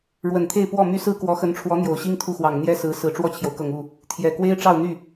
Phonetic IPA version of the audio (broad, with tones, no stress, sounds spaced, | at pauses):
ɻ w ə˨˩ n t̪ʰ e˥˧ ɪ̯ p w ɔ˥˩ m y˥ s ɹ̩˥ k w ɔ˧˥ x ə˧˥ n ʈ͡ʂʰ w ɔ˧˥ n̪ j o˨˩ ʊ̯ ɕ i˥ ŋ t̪ʰ u˥˩ x w ɑ˨˩ ŋ n̪ j ɛ˥ s ɹ̩˧˥ s ɹ̩˨˩ ʈ͡ʂ w ɔ˥˩ t͡ɕʰ j o˩ ʊ̯ k ɤ˨˩ ŋ u˥˩ | t̪ʰ j ɛ˨˩ k w e˥ ɪ̯ ʈ͡ʂ ɑ˥˧ ʊ̯ n̪ y˥˩